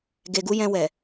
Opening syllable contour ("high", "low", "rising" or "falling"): low